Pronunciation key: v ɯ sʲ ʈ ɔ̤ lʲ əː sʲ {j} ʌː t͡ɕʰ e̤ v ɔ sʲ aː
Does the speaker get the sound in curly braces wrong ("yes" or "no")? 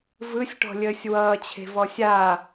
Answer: yes